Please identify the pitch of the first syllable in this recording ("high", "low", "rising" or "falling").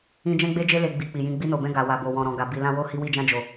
high